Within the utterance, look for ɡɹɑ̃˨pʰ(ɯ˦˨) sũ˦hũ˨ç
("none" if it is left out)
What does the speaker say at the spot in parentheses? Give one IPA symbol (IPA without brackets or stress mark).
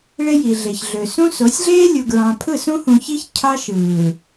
ɯ˦˨